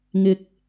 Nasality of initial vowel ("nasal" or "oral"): oral